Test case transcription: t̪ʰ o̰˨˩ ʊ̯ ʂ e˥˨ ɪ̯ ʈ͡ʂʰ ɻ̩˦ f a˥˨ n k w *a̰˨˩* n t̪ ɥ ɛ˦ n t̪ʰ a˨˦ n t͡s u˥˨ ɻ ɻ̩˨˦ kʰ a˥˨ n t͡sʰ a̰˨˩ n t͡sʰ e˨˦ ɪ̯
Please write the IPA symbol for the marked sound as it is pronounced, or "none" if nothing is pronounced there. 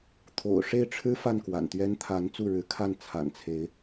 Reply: a̰˨˩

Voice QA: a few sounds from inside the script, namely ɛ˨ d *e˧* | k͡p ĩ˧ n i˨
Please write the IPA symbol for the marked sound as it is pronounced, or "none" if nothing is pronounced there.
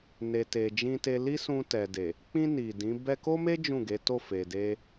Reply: e˨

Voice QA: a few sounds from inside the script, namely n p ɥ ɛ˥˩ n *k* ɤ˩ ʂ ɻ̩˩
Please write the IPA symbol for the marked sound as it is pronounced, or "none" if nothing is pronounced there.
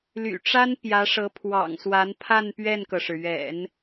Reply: k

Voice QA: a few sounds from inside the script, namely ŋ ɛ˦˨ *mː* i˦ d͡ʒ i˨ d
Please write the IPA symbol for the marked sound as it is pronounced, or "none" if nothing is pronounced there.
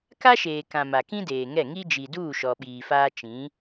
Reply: ŋ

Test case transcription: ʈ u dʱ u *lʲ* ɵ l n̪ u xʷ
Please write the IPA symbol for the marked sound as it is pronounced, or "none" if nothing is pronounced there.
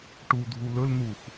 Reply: l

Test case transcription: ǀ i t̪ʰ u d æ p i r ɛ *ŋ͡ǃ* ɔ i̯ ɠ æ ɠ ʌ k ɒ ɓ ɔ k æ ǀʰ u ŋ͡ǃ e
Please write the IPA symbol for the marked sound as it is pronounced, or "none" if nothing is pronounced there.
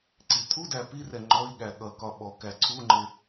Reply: ŋ͡ǃ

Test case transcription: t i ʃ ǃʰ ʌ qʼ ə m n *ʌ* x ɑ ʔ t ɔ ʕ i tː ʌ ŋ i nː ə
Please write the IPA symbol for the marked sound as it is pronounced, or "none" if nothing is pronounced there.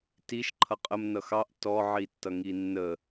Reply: ʌ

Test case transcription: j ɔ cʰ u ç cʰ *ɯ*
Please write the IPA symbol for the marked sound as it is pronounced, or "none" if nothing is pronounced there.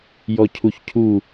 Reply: u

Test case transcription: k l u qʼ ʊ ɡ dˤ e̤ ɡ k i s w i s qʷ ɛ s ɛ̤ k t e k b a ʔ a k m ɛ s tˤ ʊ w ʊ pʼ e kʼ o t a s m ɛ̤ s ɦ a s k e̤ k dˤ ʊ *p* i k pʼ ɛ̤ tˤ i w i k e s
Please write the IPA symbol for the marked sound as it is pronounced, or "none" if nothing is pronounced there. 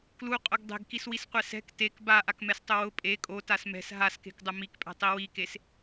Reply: m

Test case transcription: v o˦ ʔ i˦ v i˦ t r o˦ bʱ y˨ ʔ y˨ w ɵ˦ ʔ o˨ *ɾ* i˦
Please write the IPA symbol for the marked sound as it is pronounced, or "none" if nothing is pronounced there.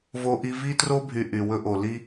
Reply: l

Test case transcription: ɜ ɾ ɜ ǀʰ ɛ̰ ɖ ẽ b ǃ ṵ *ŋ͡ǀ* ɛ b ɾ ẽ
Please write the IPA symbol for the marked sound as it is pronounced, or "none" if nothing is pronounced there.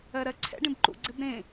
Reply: ɡ͡ǀ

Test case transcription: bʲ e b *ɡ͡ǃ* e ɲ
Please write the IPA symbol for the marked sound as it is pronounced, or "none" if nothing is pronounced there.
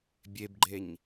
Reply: ɡ͡ǃ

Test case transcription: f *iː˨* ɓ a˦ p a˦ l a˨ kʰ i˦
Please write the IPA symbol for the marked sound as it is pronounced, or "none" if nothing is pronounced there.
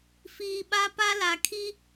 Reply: iː˨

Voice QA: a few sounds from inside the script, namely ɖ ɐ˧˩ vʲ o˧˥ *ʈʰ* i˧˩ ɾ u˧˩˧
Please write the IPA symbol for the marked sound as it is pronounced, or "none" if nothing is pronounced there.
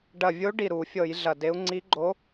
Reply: ɖ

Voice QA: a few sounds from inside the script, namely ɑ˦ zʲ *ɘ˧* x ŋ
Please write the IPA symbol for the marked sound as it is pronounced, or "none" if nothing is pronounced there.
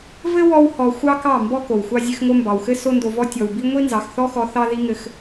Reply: ɘ˧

